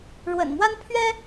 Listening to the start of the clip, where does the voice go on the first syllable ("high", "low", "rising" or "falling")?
low